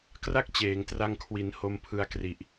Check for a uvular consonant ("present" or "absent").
absent